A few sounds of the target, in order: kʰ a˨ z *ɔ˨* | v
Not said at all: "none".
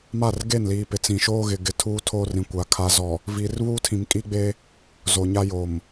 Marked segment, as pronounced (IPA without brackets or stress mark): ɔ˨